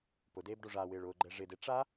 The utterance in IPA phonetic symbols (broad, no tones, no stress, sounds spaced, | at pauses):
p ʊ d eː b ɖ o ʐ a w ɪː ɭ ʊː ɡ͡ǃ ɛ ʐ ɪ d e ʈ͡ʂ a